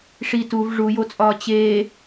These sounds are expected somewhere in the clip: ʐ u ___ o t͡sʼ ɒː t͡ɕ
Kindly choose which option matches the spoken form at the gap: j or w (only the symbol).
j